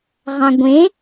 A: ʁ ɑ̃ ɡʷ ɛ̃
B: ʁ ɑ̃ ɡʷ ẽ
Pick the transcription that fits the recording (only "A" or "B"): B